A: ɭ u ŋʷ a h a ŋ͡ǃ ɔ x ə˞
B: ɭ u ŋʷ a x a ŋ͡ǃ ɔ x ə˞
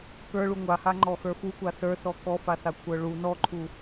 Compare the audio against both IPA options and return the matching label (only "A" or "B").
A